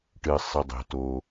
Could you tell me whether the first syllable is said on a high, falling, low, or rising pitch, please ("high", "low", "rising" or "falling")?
low